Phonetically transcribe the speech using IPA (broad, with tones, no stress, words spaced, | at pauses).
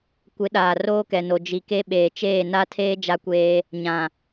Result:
kʷɪ˨˦ɗaː˨ roː˦kɛ˨no˨ d͡ʒi˨ke˦ ɓeː˨t͡ʃeː˦˨na˦tʰeː˦ d͡ʒa˦kʷeː˦ | ɲã˨